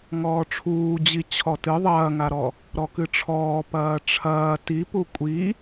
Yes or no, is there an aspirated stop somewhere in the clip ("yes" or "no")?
yes